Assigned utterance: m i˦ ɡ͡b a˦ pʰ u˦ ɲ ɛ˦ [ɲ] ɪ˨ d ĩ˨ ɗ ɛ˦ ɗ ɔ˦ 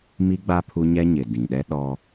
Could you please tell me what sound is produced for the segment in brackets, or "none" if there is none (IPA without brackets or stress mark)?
ɲ